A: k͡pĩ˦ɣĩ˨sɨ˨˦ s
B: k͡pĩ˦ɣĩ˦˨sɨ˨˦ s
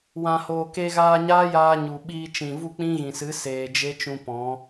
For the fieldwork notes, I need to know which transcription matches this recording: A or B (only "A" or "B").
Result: A